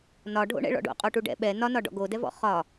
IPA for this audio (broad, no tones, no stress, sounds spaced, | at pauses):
n ɒ ɖʱ o̰ ɳ ɛ̰ ɭ ɔ̰ ɖ o̰ qʼ o ʈ u ɖ ɛ̰ ɓ ɛ n ɒ n ɒ ɖ ɔ̰ ɡ o d ɛ v ɔ̰ χ ɒ